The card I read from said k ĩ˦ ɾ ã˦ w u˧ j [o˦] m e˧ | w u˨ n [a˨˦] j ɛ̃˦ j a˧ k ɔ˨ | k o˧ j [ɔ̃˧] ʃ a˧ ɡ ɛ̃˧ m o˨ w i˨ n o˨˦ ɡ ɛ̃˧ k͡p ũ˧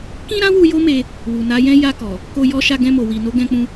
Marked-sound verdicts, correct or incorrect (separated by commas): correct, correct, incorrect